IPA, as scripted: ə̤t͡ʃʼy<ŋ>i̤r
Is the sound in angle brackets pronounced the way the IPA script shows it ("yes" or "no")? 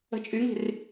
yes